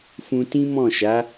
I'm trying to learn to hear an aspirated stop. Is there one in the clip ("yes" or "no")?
no